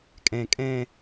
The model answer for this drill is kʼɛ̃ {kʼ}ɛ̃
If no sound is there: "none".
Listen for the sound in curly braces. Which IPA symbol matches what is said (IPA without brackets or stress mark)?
kʼ